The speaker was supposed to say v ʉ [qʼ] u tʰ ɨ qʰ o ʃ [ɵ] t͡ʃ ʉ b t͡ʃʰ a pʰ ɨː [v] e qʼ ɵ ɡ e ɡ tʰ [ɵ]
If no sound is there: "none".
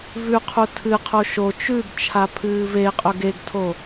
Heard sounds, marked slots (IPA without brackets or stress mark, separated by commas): qʰ, o, v, o